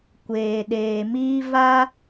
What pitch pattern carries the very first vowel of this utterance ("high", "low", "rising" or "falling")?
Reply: low